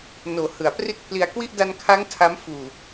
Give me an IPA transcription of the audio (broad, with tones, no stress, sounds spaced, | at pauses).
n oː˩˦ h ɯ˩˦ a̯ p r i˥˩ t̚ pʰ l i˧ a̯ k w i˥˩ ʔ d a˧ n kʰ a˦˥ ŋ tʰ a˦˥ m f uː˨˩